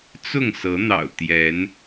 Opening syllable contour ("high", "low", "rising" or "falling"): falling